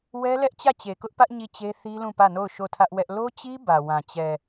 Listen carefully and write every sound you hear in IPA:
wɛ˦lɛ˦ʔt͡ɕä˦˨t͡ɕe˨ kʊ˦ʔpä˦ʔ ɲi˦˨t͡ɕe˦ θi˦lũ˦˨pä˦˨no˦˨ʊ̯ ʃo˦˨tʰä˦ʔwɛ˦ʔ lo˦t͡ɕi˦ bä˨wã˨ t͡ɕɛ˨

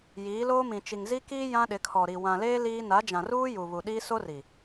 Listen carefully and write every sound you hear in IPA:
jiː˨˦ loː˦mĩ˨t͡ʃi˨ŋ zi˦kiː˦ jã˦ɗɪ˨˦kʰɔ˨ɾi˨ wã˨leː˦ liː˦ na˨˦d͡ʒã˨ruː˦ ju˨βu˨ɗiː˦ so˦ri˨

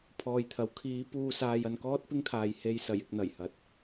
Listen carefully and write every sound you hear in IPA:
pʰɔː˨jt̪ʰɐ˨˥w kʰiː˨˧ puː˨saː˨j ɐ˧nkɔː˥t̚pɪ˥ŋt̪ʰaː˨j he˧jsɐ˨˩j ɪ˧k̚n̪ɐ˨˩jhɐ˨˥t̚

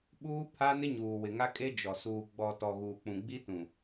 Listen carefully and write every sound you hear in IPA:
ɓuː˦pʰa˦ nɪ˦ɲuː˨wɪ˨ŋa˦ kʼe˦d͡ʒɔ˨ suː˨ ɡ͡bɔ˨ tɔ˨ɣuː˨k͡pũ˨ ɡ͡bi˦tũ˨

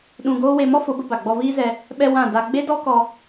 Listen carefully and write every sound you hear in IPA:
ɗũ˧ɡoː˦ we˧ mɔ˦fo˨˦bə˧ ba˨ɡ͡bɔ˧viː˦zɛ˧ | ɓɛ˧ wã˦˨da˧ ɡ͡be˦dɔ˦kɔ˧

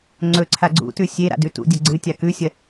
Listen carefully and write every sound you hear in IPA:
ŋ͡ǀɵǀʰa ɡ͡ǀṵtʉ sʲe ɾa̰dʉtṵdʲɐ ɡ͡ǀɨtʲa kʉsʲɐ

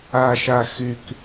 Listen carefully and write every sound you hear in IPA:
aʃaxyk

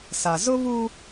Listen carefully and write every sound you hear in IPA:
sa˨ zʊ˦βu˦

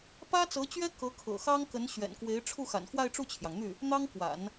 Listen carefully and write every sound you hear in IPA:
pä˥t͡sɤ˧˥t͡ɕɥɛ˥ kɤ˧˥kʰɤ̰˨˩ xɑ˥ŋkə˧˥nɕɥɛ̰˨˩nkwe˧˥ɪ̯ ʈ͡ʂʰu˥˩xa̰˨˩nxwa˥˧ɪ̯ ʈ͡ʂu˥˩t͡ɕʰjɑ˩ŋn̪y˥˩ | n̪ɑ˥ŋkwa̰˨˩˦n

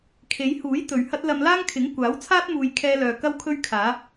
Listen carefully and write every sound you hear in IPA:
kʰe˨˧jhuː˨˥j t̪ɵ˨ɥhɐ˥t̚ lɐ˧m laː˥ŋkʰɪ˨˥ŋ kʷaː˨˥wt͡sʰaː˥t̚muː˨j kʰɛː˧lœː˨ kɐ˧wkʰɵ˧ɥ kʰaː˨˥

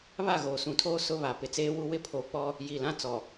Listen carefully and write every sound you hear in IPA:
βa˦˨ɣoː˨ sũ˨tʰoː˦ sʊ˦ βa˨pɪ˨t͡seː˦wu˦ wɪ˦˨pʰoː˨k͡pɔ˦ | ji˨lã˦t͡sɔ˨

